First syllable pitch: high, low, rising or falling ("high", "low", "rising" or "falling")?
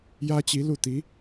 high